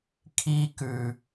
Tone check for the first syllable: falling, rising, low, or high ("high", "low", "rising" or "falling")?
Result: high